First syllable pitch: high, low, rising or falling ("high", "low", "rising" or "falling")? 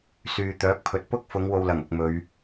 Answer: low